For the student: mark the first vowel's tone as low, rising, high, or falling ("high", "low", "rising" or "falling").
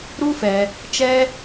high